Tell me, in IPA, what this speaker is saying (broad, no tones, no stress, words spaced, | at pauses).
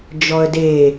d͡ʒɔə̯de